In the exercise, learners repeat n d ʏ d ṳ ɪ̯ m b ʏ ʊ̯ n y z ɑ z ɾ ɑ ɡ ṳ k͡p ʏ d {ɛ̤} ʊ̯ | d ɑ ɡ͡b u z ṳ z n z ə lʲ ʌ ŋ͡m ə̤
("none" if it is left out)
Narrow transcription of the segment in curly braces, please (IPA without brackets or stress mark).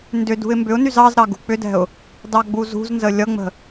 ɛ̤